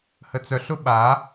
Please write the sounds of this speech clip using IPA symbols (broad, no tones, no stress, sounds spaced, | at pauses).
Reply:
h ə t͡s œ ɬ ʊ ɓ a